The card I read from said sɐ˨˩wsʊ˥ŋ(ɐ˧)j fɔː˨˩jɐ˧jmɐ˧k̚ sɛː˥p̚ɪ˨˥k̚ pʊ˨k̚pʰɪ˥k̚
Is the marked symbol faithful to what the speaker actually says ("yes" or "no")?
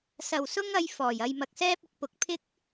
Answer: yes